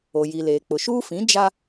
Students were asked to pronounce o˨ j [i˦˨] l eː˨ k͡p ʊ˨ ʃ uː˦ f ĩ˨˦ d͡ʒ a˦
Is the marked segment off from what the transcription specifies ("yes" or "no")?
yes